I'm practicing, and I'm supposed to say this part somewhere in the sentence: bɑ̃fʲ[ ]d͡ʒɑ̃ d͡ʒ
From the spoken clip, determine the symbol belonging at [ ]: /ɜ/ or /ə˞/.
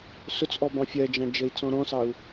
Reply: ɜ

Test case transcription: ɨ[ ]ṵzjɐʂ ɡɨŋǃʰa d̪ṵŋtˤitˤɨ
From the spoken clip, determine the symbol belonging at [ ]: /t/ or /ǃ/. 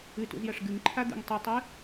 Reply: t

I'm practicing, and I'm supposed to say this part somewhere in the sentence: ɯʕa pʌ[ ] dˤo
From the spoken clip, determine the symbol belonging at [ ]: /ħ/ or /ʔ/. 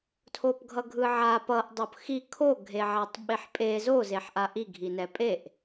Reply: ʔ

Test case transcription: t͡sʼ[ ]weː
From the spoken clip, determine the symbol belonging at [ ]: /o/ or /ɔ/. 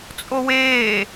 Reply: o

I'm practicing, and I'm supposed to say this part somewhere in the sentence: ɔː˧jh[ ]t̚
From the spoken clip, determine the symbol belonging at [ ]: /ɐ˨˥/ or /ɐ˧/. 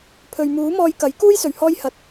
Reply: ɐ˨˥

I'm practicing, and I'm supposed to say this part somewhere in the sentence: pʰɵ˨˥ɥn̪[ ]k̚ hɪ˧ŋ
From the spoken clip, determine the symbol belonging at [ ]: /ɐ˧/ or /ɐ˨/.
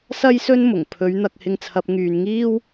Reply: ɐ˧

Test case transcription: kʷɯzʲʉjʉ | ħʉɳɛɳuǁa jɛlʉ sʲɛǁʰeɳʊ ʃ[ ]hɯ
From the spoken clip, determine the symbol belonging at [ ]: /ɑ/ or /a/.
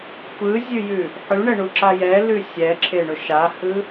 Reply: a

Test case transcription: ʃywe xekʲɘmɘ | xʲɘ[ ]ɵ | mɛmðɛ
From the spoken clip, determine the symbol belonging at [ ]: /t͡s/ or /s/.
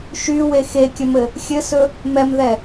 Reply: s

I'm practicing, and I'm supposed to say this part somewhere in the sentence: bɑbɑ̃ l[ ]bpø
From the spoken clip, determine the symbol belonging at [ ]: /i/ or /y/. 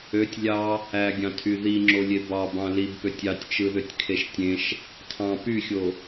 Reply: i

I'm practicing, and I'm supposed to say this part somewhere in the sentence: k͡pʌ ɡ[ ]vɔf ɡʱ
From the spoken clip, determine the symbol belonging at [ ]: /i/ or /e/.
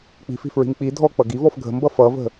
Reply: i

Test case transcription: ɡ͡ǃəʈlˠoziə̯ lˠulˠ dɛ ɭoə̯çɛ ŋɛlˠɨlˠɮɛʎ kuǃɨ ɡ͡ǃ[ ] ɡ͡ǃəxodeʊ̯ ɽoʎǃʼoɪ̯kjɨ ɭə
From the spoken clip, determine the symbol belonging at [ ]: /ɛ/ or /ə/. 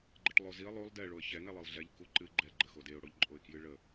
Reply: ɛ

